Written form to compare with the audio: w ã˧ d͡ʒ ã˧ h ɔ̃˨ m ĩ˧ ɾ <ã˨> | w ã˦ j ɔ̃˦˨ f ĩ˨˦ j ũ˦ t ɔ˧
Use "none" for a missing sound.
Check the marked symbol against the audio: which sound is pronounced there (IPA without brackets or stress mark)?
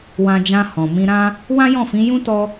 ã˦